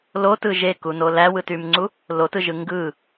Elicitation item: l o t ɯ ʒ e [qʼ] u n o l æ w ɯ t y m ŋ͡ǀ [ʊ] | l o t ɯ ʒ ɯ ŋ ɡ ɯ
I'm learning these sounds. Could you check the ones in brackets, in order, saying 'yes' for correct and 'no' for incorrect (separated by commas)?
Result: no, no